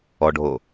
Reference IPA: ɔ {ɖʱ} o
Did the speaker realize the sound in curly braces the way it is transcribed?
yes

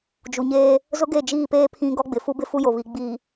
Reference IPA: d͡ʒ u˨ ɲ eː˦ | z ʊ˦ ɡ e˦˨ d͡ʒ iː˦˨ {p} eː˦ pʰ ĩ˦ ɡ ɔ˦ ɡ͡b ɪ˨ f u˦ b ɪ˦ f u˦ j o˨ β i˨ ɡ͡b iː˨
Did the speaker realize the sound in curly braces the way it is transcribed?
yes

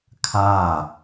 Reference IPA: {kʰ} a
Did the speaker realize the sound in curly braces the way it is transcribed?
yes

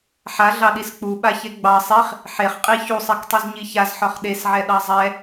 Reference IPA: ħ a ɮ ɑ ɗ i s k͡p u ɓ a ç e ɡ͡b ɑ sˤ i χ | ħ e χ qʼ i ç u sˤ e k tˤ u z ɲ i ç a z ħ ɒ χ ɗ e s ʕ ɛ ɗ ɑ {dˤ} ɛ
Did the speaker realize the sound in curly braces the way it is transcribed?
no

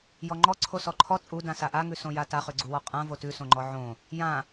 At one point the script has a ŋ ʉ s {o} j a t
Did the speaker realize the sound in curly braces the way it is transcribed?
no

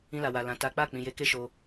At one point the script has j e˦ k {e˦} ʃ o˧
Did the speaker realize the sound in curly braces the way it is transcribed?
yes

